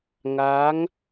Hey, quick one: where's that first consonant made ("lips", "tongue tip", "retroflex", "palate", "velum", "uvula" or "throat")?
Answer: velum